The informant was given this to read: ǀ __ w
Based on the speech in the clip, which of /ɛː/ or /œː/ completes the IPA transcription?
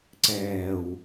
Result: ɛː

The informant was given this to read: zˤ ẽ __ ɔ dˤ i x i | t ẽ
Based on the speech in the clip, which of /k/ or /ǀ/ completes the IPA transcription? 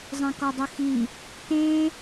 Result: k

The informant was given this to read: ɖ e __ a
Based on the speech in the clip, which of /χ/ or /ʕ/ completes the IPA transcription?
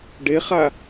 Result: χ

